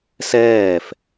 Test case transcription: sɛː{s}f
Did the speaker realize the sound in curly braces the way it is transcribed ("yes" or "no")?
no